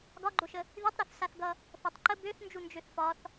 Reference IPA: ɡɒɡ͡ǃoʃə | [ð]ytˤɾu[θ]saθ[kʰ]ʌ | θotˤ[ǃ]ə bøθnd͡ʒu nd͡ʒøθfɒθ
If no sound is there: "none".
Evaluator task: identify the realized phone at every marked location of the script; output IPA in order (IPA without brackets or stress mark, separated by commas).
ð, θ, ɡ, ǃ